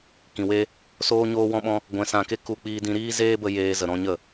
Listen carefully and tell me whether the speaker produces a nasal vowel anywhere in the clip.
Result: yes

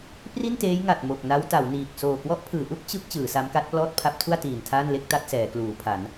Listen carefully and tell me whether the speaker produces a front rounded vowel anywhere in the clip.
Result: no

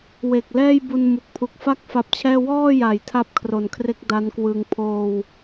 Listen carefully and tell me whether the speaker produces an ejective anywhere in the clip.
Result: no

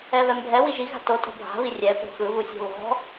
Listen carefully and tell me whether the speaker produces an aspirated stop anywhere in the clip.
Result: no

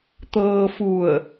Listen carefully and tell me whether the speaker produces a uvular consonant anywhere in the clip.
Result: no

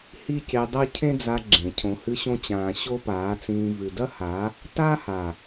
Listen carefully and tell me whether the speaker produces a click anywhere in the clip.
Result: yes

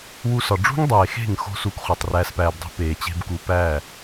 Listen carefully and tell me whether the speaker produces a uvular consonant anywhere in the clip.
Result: yes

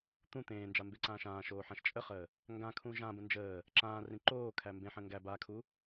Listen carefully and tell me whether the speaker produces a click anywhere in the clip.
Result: yes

